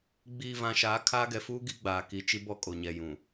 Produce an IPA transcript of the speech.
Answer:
ɡ͡b iː˨ v ã˨ ʃ aː˨˦ kʰ a˦ ɡ ɛ˨ f uː˦ ɡ i˦ ɡ͡b aː˨ k i˨ t͡ʃ i˦ b ɔ˦ kʼ o˨ ɲ ɛ˨ j ũ˨

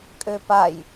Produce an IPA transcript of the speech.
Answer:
kʼ ø p a j

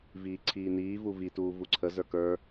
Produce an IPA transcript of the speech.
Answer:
v iː ǀʰ iː n iː v u v i t uː v u ǀʰ ə z ə˞ k ə˞

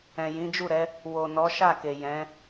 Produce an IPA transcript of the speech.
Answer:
ɛ̃˨ j ĩ˨˦ d͡ʒ u˦˨ ɾ ɛ˨˦ | w o˨ n ɔ˨˦ ʃ a˦˨ k e˨ j ɛ̃˨˦

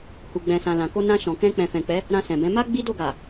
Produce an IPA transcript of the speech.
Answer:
h u˨ ɡ͡b ɛ̃˨ s ã˨ l ã˨ k o˧ n ã˧ ʃ ɔ̃˨ k ɛ̃˧ k͡p ɛ̃˨ f ɛ̃˨ k͡p ɛ˨˦ | ɾ ã˧ s ɛ̃˨ b ɛ̃˨˦ m a˦ ɡ͡b i˦ d o˦˨ ɡ a˨

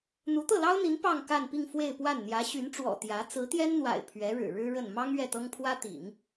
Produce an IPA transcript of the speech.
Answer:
n̪ u˧˥ t̪ ɤ˥˩ l ɑ˥ ʊ̯ n̪ i˧˥ n p ɑ˥˧ ŋ k a˥˧ n p i˥˧ ŋ f w e˥˧ ɪ̯ p w a˥˩ n n̪ j ä˧˥ ɕ y˧˥ n ʈ͡ʂ w ɔ̰˨˩ t̪ j ä˧˥ t͡s ɹ̩˧˥ t̪ j ɛ˥ n n̪ w a̰˨˩ ɪ̯ pʰ ɥ ɛ˧˥ ɻ ɻ̩˨˩ ɻ ɻ̩˥ ɻ ə˥˩ n m ɑ˥ ŋ ɥ ɛ˥˩ t̪ ɤ˥ ŋ pʰ w ä˥ t̪ ḭ˨˩˦ ŋ

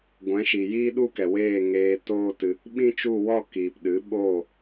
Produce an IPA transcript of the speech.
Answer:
ɡʷ ɛ̃˨˦ ʃ i˨ j iː˦ ɗ u˦ k ɛ˨ w eː˦˨ ŋ eː˧ t oː˦ t ɨ˧ | ɓ ĩ˦ t͡ʃ u˦˨ w ɔ˦˨ k iː˨ p ɗ ɨ˨˦ ɓ oː˦˨

